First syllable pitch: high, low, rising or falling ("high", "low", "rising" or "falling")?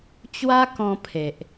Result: high